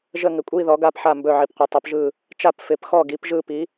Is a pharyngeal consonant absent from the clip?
no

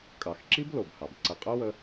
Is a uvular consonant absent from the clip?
no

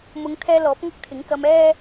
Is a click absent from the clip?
yes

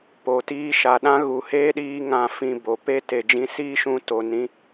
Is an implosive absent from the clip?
no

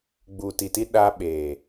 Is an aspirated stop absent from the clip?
yes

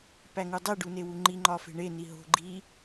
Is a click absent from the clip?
no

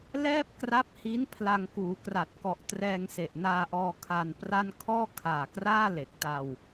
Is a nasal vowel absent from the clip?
yes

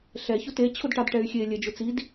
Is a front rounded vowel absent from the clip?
no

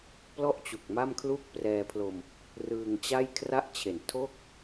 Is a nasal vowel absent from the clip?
yes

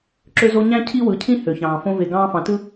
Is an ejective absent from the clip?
yes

